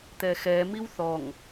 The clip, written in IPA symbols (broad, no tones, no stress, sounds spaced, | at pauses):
t̪ ɛ x ɛ m i w θ ɔ ŋ